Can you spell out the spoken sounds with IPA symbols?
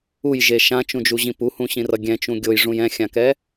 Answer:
u j ʒ e ʃ ã t͡ʃ ũ d͡ʒ u ʑ ĩ p u h ũ ɕ ĩ r ʌ ɡʲ ɛ̃ t͡ʃ ũ ɡʲ o j ʐ ũ j ɛ̃ xʲ ã k ɛ

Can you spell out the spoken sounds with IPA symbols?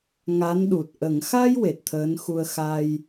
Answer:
ŋ a˧˥ n ɗ u˨˩ t̚ ʔ ə˨˩˨ ŋ x a˧ j w e˨˩ t̚ t̪ʰ əː˧˥ n x u˧ ə̯ x a˧ j

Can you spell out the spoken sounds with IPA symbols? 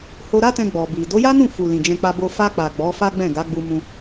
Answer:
h o˧ ɾ a˦ t ɛ̃˧ ɡ͡b ɔ˨ b i˨ d o˨˦ j a˦ n ũ˦˨ f u˨ l ĩ˨ d͡ʒ ɛ̃˧ k͡p a˧ b o˧ f a˧ k͡p a˨ ɡ͡b ɔ˨˦ f a˦ ɡ͡b ɛ̃˦˨ ɡ a˨˦ ɡ͡b u˧ m ũ˧

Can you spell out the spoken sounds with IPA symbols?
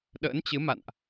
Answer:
ɗ ə̰ː˧˥ n t͡ɕ ɨ˨˦ m a̰˧˨ n ʔ

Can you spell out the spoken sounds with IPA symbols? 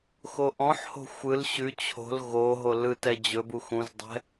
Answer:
x o ʔ ɔ̃ ħ h o̤ xʷ ɯ l ɕ ʉ t͡ɕʰ o̤ l ɣ o ɦ o l ɯ t ɛ d͡ʑ ɵ b u x ũ z dˤ ɛ̤

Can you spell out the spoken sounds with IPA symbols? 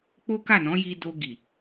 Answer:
k͡p o˦ k a˦˨ n ɔ̃˨˦ j i˧ d o˧ ɡ i˨

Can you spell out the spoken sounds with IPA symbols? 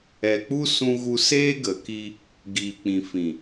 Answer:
ɛ˨ k͡p u˦ s ũ˧ ɣ u˧ s eː˦ ɡ ə˨ k i˧ | ɡ iː˨ k͡p ĩ˨ f ĩ˨

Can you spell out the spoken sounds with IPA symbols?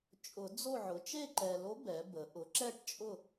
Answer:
t͡ʃʼ ʊ˨˩˦ d͡z o˥˨ ʕ ʊ˩˥ t͡ʃ e˥˨ ǃ ɛ˨ l o˧˥ b ɛ˩˥ b ə˩˥ ʔ ʊ˩˥ ǁ ɛ˥˨ ʈ t͡ʃʼ ʊ˥˨

